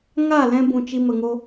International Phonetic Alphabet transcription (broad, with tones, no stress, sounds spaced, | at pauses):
ŋ a˦˨ l ɛ̃˦ b ũ˨ t͡ʃ i˧ m ə˨ ŋ o˦